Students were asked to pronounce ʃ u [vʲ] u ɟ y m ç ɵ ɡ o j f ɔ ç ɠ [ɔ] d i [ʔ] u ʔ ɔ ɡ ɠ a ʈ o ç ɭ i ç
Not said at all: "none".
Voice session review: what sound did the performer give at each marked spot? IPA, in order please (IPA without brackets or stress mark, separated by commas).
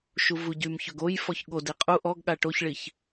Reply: v, o, qʼ